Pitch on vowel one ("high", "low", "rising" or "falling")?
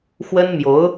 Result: high